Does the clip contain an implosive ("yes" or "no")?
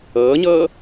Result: no